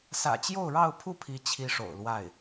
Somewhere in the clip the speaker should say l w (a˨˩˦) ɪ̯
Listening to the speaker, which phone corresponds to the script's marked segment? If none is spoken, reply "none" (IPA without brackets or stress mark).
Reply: a˥˩